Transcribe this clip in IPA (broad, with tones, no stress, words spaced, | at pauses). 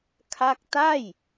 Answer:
kʰa˥˩k̚ ta˥˩j